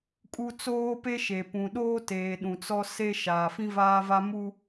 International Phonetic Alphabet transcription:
kʼ u˦ t͡s oː˦ p e˦ ʃ e˨ p ũ˨ ɗ oː˦ t eː˨ ɗ ũ˨ t͡s ɔ˦ s e˦ ʃ aː˨ f ĩ˦ v aː˦ v a˦ m u˦

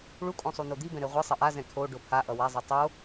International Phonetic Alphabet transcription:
ɭ u kʼ õ sˤ u n o d̪ i b ɛ̃ ɾ e ʁʷ ɯ sˤ ʌ ʔ a z ɛ̃ kʰ o ɖ o pʰ a ʔ ʌ w a zˤ ɛ tˤ o

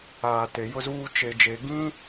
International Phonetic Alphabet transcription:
aː˨ t e˨ j ʊ˦ z uː˦ t͡ʃ e˨ d͡ʒ e˨ ɡ ĩ˦

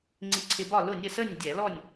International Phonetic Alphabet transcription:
ŋ͡ǀ i˧ ǀʰ ɪ˧ b ɒ˥˨ l ʊ˥˨ nʲ ə˥˨ s ə˥˨ nʲ dʲ æ˧˩˧ l ɔ˥˨ nʲ

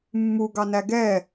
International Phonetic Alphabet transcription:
mː u ɡ ɑ n æ ɡ ɛ

